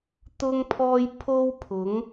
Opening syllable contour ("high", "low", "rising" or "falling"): high